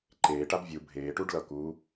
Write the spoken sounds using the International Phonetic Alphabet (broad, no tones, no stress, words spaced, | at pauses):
ǃeːʈab vʲu bʱeːʈuɖ lʌku